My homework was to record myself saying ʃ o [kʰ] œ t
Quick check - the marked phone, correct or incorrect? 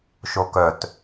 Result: incorrect